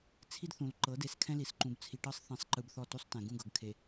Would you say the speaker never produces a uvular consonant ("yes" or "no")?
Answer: yes